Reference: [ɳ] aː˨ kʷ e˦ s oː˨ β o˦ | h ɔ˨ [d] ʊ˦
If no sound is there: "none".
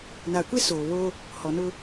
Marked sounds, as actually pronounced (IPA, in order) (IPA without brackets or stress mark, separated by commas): n, n